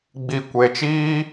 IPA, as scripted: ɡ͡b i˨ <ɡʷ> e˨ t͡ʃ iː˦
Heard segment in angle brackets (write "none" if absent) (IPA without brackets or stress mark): kʷ